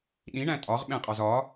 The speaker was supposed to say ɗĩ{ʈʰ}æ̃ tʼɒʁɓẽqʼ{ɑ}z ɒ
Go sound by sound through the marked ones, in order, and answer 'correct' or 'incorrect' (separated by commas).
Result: incorrect, incorrect